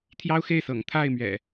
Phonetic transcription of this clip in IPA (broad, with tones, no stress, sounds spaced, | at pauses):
t̪ʰ j ɑ˦ ʊ̯ x e˥˨ ɪ̯ s ɤ̰˨˩ ŋ t̪ʰ a˥˨ ɪ̯ m ɥ ɛ̰˨˩